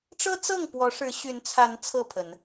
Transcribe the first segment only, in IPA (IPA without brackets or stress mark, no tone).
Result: ʈ͡ʂ